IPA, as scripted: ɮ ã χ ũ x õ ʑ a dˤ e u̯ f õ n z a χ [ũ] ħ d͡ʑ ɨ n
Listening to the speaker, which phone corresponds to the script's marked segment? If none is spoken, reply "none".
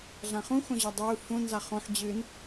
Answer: õ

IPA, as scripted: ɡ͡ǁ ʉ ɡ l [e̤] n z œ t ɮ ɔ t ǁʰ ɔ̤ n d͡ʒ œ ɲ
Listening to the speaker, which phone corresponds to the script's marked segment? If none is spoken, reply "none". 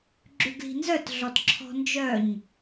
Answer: i̤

